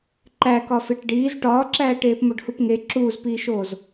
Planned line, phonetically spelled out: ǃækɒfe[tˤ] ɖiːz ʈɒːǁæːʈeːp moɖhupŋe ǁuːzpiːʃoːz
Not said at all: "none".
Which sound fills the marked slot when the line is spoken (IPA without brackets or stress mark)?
ʈ